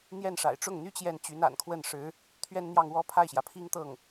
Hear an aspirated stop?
yes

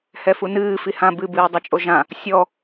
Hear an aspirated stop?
no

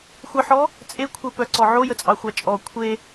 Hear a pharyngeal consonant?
yes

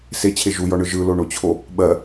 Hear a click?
no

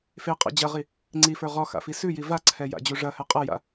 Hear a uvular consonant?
yes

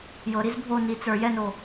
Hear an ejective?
no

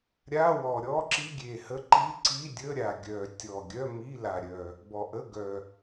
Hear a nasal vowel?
no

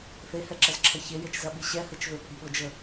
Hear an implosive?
yes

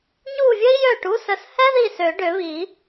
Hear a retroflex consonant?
yes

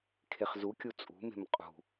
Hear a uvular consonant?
yes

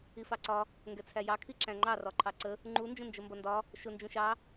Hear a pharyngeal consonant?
no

